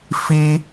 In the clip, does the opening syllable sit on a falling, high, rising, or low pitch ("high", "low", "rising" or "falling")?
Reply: high